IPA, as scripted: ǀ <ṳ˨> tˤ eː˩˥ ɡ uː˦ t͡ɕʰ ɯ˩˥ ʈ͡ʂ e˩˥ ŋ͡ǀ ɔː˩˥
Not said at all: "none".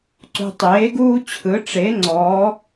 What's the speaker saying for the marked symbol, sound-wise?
ṳ˨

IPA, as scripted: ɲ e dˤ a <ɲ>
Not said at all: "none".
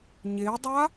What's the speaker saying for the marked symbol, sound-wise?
none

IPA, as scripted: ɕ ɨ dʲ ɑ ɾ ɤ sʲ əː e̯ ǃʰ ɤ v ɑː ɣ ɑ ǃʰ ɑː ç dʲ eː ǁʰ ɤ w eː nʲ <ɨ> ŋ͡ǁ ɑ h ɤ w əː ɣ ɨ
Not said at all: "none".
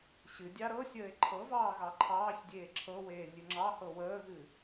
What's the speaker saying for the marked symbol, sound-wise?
ɨ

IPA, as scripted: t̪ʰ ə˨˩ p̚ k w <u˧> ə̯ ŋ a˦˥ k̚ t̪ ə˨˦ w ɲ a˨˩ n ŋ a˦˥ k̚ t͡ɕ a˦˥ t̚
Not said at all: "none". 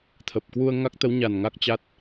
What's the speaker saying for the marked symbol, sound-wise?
u˧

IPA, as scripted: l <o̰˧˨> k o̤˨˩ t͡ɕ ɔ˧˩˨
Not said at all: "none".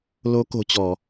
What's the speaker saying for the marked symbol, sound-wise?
o˨˦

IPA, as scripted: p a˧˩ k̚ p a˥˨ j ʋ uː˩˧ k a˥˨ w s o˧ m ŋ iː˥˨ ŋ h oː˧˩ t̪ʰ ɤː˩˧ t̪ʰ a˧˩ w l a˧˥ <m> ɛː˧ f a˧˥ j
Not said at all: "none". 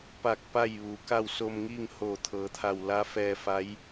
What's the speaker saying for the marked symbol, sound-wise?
f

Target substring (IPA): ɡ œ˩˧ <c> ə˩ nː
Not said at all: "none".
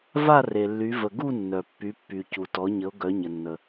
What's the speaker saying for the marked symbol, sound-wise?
ɲ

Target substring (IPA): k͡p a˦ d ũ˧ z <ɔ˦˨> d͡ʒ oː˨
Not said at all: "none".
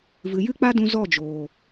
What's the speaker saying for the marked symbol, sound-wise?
ɔ˦˨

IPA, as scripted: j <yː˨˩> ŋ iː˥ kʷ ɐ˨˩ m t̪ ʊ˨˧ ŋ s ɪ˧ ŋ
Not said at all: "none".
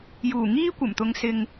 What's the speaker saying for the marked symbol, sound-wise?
uː˨˩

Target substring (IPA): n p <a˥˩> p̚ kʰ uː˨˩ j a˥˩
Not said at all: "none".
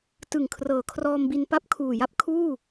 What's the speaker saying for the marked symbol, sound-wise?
a˥˩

